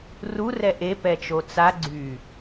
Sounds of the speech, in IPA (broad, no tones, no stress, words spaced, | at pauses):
ru rɛʔe pɛt͡ʃot͡sa ɡ͡ǀy